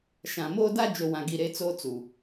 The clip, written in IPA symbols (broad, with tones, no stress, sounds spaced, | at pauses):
ʃ ã˨ m oː˦ d a˦ d͡ʒ o˨ w ã˨ ɡ i˨ ɾ e˦ t͡s oː˦ t͡s u˨